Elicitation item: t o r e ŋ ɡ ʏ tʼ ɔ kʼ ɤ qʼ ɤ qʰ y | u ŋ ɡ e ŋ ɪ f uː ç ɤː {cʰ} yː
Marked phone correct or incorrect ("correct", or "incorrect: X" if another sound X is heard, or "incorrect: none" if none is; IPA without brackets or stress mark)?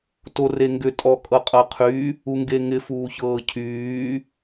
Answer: correct